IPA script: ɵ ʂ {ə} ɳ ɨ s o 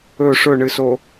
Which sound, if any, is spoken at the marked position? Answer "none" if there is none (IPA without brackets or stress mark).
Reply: ɵ